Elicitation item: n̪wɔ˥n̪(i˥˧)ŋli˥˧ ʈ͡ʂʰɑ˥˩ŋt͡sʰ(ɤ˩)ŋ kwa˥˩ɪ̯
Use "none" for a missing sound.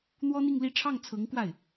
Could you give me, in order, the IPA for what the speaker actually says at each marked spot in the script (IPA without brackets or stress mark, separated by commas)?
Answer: i˥˧, ɤ˧˥